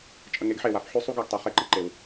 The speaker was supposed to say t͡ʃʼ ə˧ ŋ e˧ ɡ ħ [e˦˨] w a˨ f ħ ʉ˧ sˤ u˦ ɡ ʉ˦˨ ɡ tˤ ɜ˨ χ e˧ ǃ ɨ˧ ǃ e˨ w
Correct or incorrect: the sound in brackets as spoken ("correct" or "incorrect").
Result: correct